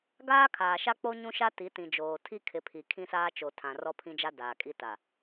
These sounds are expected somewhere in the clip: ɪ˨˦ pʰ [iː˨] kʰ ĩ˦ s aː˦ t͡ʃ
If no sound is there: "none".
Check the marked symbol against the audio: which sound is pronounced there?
i˨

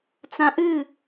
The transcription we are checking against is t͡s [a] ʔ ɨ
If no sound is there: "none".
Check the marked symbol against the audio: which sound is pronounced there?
ã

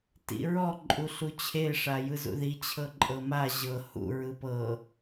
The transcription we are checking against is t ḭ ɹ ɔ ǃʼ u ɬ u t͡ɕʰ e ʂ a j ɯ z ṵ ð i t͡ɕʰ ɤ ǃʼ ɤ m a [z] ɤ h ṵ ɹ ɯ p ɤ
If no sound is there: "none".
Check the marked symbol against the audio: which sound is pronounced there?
ʑ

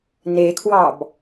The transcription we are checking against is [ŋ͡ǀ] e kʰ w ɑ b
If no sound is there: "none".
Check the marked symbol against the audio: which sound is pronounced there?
n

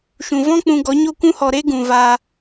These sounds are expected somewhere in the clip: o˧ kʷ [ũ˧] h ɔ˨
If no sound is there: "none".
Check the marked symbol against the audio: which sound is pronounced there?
ũ˧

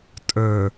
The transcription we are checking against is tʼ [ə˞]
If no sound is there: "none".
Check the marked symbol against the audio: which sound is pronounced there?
ə˞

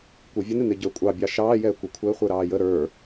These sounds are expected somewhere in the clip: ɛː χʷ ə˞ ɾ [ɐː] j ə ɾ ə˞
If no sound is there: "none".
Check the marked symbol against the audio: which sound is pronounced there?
ɑː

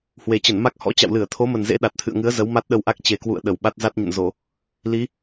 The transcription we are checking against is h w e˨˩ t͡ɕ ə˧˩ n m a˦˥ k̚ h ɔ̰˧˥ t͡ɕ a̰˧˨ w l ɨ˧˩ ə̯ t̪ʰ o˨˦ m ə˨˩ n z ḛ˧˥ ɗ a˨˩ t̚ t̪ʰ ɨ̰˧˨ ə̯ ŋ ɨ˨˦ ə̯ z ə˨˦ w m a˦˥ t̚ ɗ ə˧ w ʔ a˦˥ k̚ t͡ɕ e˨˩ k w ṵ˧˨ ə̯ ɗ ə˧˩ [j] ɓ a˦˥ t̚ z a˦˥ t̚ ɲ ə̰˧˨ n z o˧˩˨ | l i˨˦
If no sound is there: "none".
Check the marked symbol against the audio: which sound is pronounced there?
w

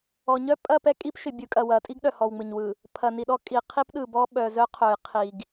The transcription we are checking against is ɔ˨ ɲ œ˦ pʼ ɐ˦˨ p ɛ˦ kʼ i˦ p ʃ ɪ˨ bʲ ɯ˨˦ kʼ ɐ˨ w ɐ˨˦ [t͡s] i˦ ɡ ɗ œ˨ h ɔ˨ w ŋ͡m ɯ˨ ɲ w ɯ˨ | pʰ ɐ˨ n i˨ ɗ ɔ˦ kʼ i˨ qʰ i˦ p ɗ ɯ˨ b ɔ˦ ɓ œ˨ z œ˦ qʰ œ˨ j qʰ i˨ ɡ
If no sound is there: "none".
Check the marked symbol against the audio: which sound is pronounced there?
tʼ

